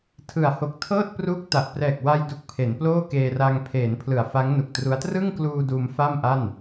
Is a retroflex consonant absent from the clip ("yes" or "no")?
yes